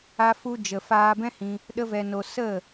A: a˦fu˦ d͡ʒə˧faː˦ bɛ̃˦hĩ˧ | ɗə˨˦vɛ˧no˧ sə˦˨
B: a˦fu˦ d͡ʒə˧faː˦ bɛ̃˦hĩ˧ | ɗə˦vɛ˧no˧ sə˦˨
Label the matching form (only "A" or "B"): B